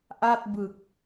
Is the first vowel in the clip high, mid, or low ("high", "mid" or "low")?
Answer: low